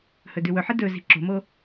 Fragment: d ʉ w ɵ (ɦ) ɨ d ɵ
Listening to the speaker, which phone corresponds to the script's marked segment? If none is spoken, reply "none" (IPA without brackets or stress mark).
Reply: ħ